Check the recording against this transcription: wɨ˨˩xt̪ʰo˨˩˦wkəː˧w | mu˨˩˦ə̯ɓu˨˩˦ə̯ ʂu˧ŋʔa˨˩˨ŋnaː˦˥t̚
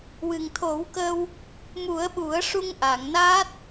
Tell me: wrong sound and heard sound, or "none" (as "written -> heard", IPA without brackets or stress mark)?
x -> ŋ